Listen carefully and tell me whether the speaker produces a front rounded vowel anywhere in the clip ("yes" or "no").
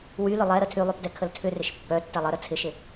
yes